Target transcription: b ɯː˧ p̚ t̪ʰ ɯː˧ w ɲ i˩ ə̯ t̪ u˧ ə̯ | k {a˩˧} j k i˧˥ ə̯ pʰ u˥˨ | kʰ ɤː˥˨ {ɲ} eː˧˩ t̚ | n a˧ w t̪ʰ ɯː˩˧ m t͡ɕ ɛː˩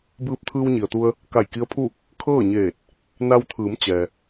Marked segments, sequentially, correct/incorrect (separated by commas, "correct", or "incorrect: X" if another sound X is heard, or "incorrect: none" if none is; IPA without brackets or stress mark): incorrect: a˧˩, correct